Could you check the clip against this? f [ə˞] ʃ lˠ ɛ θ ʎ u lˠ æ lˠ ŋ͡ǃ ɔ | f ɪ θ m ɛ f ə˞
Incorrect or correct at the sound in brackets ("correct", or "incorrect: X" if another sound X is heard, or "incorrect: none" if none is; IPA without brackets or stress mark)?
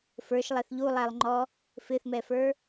correct